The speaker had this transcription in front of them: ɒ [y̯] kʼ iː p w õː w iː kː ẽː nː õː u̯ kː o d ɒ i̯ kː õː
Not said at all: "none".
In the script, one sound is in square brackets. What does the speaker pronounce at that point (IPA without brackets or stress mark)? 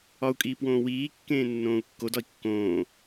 u̯